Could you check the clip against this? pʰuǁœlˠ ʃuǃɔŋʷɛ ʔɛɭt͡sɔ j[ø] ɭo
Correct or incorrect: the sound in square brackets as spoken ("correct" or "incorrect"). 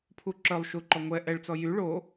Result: incorrect